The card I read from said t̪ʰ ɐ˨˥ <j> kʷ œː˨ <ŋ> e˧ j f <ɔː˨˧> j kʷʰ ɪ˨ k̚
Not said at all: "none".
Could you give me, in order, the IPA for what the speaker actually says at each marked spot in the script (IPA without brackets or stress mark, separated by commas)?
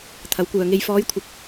w, ŋ, ɔː˨˧